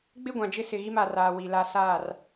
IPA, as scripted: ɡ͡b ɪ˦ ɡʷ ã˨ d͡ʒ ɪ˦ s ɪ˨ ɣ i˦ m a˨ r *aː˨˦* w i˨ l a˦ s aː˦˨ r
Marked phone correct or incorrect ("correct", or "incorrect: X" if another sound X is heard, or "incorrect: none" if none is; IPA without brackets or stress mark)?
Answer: incorrect: aː˨